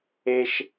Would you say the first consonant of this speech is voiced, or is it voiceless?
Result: voiceless